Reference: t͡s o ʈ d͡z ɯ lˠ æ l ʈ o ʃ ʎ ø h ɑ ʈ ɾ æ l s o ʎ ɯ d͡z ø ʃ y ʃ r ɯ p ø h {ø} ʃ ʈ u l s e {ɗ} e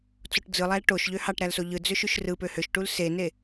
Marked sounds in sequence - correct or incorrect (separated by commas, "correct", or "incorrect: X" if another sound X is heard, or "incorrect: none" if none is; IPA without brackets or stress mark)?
correct, incorrect: n